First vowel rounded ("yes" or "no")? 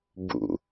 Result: yes